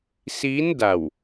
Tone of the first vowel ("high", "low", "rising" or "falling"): rising